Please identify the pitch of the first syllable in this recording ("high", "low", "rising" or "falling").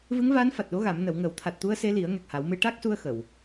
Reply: rising